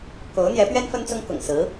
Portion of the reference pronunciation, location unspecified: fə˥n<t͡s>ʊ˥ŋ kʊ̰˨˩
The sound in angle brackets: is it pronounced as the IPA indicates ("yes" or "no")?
yes